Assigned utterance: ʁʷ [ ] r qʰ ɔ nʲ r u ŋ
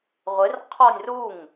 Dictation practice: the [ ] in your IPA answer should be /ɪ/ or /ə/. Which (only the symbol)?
ɪ